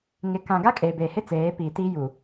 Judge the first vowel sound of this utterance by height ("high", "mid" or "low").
high